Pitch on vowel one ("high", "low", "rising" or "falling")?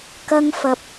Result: high